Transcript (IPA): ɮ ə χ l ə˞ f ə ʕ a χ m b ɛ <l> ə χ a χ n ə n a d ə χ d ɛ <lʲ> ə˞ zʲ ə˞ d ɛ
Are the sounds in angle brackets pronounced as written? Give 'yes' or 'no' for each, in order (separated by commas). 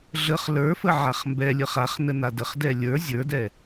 no, yes